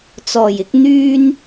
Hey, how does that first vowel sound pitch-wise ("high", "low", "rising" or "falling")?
low